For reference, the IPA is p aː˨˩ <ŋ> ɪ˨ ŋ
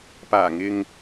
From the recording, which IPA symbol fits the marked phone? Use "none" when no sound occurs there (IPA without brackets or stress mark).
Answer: ŋ